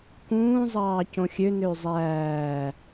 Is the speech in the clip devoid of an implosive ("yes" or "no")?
yes